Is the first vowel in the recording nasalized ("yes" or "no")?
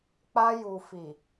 no